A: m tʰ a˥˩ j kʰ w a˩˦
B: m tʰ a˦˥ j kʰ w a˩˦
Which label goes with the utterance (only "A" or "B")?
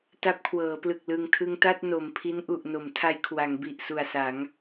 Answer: B